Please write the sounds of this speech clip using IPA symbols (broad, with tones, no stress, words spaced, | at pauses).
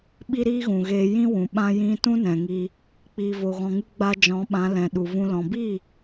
ɓi˦ɾiː˦ɣũ˨ɣeː˧ jĩ˦wũ˨ ɓã˦jĩ˦ tũ˦nɛ̃˨ŋi˧ | k͡piː˨vo˨ɣɔ̃˨ŋɨ˧ ɡ͡ba˧d͡ʒɔ̃˨˦ɓã˨˦ lɛ̃˨ɗu˨vũ˧ lɔ̃˨biː˦˨